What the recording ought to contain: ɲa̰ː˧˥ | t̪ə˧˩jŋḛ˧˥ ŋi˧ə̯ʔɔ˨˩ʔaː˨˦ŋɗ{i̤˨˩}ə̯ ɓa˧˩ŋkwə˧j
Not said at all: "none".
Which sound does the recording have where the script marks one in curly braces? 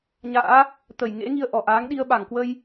i˧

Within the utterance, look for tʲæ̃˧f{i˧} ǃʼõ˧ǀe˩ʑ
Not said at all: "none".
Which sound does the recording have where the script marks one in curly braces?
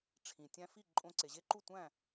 i˥˩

